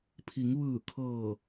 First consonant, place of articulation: labial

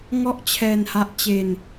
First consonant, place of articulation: velar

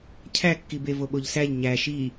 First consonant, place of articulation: palatal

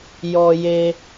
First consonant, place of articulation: palatal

